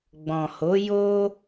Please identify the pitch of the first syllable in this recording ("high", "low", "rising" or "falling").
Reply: low